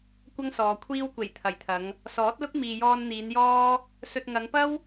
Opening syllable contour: high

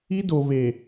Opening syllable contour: high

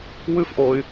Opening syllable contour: high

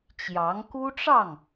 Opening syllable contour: rising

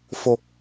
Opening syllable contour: low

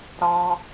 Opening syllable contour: high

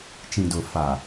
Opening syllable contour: low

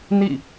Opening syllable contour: falling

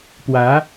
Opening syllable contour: rising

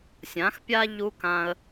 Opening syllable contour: rising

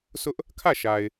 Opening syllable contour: high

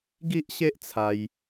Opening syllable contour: high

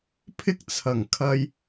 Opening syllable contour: high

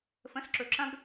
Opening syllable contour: rising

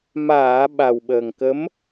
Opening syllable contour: low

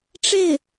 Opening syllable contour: falling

